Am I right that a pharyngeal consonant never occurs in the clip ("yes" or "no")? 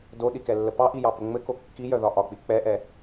yes